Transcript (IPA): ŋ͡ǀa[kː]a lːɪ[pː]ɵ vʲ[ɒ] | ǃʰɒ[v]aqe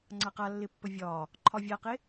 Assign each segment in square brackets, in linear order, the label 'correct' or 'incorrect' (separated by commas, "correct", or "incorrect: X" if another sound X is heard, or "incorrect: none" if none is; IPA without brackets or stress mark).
incorrect: q, correct, incorrect: ɒː, incorrect: vʲ